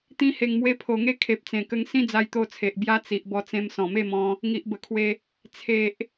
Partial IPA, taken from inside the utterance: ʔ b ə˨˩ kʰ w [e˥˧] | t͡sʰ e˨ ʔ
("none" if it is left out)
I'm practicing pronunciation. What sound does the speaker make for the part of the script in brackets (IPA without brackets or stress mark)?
e˧